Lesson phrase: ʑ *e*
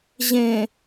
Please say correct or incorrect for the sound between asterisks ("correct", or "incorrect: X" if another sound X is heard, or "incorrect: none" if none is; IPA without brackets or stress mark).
incorrect: ẽ